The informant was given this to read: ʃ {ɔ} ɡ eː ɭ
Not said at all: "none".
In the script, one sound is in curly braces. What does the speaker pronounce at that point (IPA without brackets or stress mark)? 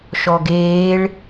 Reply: ɔ